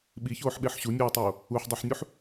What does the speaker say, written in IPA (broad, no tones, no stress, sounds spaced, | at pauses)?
ɓ i ç oː ħ ɓ e ħ ɕ u nʲ uː tˤ oː | u ħ dˤ i ħ nʲ u ħ